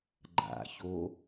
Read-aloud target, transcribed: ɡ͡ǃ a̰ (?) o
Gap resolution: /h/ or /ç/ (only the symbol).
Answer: ç